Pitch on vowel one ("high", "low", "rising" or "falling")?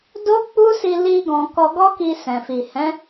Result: high